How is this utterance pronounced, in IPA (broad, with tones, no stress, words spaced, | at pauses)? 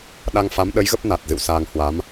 ɗa˧ŋfa˨˦m ɗə˨˦jɣə˦˥p̚ na˨˩t̚ zɨ̰˧˨wsaː˧ŋ hwa˨˦m